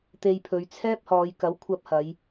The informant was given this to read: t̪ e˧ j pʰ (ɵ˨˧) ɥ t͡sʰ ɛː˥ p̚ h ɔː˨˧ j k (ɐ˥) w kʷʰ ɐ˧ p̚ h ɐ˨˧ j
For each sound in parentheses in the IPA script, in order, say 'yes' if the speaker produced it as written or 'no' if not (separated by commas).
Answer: yes, no